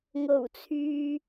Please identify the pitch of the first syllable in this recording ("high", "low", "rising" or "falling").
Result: low